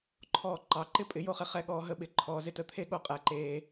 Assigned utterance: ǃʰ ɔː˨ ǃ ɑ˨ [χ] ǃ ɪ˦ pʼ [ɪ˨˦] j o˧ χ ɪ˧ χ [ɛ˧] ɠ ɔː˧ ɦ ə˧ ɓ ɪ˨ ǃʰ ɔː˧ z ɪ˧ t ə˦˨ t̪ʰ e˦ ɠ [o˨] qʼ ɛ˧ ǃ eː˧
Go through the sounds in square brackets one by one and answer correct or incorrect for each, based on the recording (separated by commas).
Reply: incorrect, correct, correct, incorrect